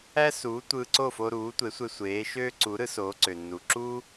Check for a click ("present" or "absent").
present